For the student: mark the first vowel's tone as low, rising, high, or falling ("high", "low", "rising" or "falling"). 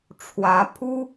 rising